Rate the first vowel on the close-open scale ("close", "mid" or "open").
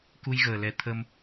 close